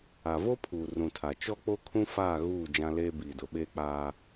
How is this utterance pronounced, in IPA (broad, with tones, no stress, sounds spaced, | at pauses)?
a˨ v o˦ pʰ uː˨ r ũ˨ tʰ a˨ t͡ʃ ɔ˦ k͡p o˦ kʰ ũ˦ f aː˦˨ ɣ uː˦˨ d͡ʒ ã˦ l eː˦ b iː˨ d ʊ˨ ɓ eː˦ k͡p aː˦